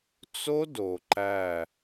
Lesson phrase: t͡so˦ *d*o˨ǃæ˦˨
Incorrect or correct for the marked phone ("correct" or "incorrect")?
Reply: correct